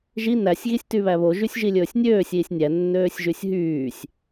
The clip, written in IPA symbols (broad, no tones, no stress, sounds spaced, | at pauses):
ʒ i n æ sʲ ɣ i sʲ t y β æ β o ʒ y sʲ ʒ i lʲ ɵː sʲ nʲ øː sʲ iː sʲ nʲ æ nː øː sʲ ʒ y sʲ ɦ yː sʲ